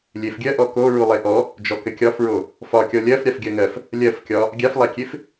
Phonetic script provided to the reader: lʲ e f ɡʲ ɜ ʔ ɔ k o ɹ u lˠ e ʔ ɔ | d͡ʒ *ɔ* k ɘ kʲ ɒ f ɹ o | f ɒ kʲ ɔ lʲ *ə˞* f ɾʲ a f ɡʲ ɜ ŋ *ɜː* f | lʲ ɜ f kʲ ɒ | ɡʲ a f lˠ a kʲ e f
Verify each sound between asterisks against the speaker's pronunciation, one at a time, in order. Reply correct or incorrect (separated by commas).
correct, incorrect, incorrect